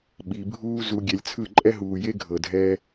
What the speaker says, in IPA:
ɓi˧ bʱuː˦ zu˧ɡʲɛ˧lʲt͡sʰɯ˦˨ ǃʼɛ˧ɦuː˨je˧ ɡʱɤ˨dʱɛː˧

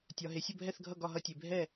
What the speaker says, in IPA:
tʲɒ˩ɦe˩ sʲə˥˩bʱɛ˥˩θɡʱʌ˥˩ ɡɒ˥˩ɦʌ˥˩tʲe˩ bʱɛ˥˩

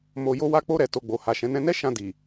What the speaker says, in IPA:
mo˨jo˧wa˧ k͡po˧ɾɛ˨ to˨ɡ͡bo˨ ha˨ʃɛ̃˨˦ nɛ̃˧nɛ˦ ʃã˧di˨

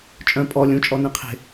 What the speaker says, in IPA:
t͡ʃʼœ̃ pʼɔ lʲũt͡ʃʼɔnẽ qʰe̤

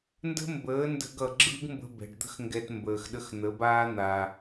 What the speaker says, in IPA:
ndə̤˦mbəː˨˦ndə̤˧ɡ ʌ˨ɡ͡ǁɯ˦ɡmbə̤˧ bɛ̤˨ɖd̪ə̤˦xŋɡɛ˧t mbəː˨xɗə˧xn̪ə˨˦baː˦ n̪a˧

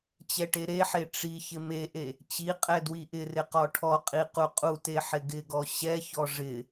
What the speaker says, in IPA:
t͡ɕɛʈeɾeħe ʈ͡ʂi çɪmeʔe | t͡ɕi qʼɛdwiʔɪrɪ qɔʈʰɔqʼi quqʼute ħɪɡɪɡɔ ɕɛçɔ ʐɪ

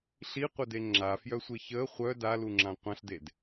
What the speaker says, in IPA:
ɬiqʷəde ŋ͡ǁafjœsʷe çə χʷœ daluŋ͡ǁã qʷãɬded

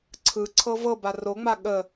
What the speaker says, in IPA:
ǀʰɯ ǀʰɤvɤba roŋ͡ma ɠə

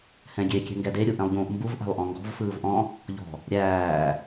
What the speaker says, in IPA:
hɛ̃ɡʲe kʲɛ̤ŋɡɛde ɾʲuʔɛ̃lˠʎũːʔmbuv ʔæ̤lˠʔɔ̃ŋɡɔ̤v fɯːvʔɔ̃ | ʎɔ̤ | ɾʲæː

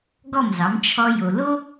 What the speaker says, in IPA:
ɡɔ˥˩mzɑ˩˥m t͡ʃʰɔ˧jo˩ lo˥

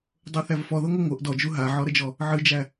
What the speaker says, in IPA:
dˤoθævfɔðɤ ŋʷɨŋʷɤʔ dɔd͡ʒu ɦaʕɔɾəd͡ʒɔ | ʕɨd͡ʒæ

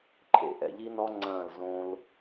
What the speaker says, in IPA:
ǃʰḛ˨ʔɛ̰˨ʎi˦nɔ˦ ŋ͡ǀɐ̃ː˦˨lzõː˦l

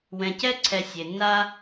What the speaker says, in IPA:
wɛ̃˨cɛ˥ǀʰɛ˨ sʲe˩nːa˥

